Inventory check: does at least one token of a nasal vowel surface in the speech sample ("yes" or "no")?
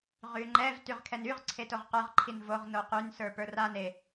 no